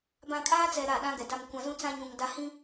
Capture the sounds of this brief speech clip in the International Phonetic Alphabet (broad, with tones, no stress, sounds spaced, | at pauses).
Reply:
b ã˨ kʼ aː˦ t͡s ɛ˨ ɾ a˦˨ ɗ ã˦ ɡ ɛ˨ d a˨ m kʷ ã˨ z ũ˦ t͡s ã˦ ɲ ũ˨ ŋ d a˦ h ĩ˦